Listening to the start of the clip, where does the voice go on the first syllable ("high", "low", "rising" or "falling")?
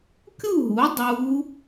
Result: falling